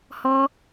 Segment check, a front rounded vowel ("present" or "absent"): absent